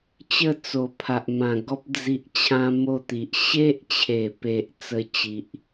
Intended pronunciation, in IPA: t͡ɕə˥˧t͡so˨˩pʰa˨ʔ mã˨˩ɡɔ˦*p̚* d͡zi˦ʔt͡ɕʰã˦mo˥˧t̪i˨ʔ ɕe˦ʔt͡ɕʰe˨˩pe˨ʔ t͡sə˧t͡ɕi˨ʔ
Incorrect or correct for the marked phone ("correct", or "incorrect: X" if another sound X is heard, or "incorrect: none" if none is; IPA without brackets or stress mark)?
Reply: correct